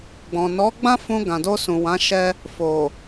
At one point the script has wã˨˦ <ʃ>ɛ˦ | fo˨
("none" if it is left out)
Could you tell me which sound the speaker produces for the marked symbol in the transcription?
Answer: ʃ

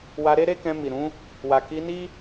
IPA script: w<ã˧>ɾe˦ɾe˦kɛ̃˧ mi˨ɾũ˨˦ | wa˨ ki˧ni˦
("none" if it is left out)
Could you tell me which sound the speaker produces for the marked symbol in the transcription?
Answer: a˧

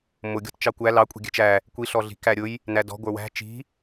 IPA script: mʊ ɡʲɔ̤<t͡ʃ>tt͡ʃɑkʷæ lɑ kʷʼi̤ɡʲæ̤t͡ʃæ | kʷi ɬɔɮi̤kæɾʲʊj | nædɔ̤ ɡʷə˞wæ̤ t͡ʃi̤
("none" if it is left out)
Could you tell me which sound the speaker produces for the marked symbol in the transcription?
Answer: none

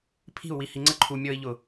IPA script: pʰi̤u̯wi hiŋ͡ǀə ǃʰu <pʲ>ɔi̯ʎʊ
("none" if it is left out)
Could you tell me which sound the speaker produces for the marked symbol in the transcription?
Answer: mʲ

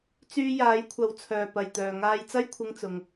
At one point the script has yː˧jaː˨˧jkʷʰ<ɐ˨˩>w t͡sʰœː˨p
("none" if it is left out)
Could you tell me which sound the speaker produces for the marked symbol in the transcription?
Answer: ɐ˨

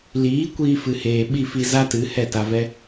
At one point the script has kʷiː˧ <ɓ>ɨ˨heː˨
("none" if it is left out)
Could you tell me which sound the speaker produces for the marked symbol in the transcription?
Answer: f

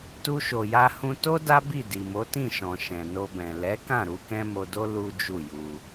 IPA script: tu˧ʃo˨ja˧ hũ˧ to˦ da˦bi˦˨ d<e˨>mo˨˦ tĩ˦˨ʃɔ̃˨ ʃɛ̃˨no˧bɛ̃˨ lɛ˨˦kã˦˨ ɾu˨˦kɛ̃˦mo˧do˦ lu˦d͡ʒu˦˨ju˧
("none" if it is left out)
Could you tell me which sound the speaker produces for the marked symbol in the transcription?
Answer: i˨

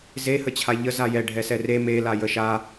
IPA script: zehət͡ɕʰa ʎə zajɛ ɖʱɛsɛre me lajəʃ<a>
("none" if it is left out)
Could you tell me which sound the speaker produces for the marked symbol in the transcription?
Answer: a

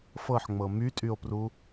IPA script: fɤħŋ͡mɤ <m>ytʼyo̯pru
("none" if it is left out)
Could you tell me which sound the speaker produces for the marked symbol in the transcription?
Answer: m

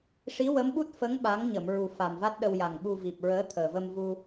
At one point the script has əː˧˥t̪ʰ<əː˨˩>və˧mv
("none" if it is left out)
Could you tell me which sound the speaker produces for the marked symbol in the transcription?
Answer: əː˨˩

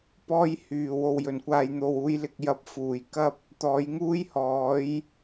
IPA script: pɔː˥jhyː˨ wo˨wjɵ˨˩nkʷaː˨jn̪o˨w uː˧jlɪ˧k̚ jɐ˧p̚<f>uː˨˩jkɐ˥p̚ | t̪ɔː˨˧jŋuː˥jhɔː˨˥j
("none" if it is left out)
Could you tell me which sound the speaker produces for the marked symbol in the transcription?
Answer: f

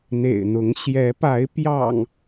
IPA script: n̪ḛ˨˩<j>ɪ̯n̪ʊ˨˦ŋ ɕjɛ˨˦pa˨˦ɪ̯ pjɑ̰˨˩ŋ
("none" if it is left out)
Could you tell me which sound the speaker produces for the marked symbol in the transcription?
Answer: none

